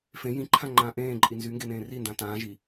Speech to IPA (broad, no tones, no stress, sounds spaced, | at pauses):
f ẽ j ĩ ǃʰ ã ŋ͡ǃ ãː ʔ ẽː ǃʼ i n z y ŋ ɡ e n ẽː r i n d ã t ãː ʒ i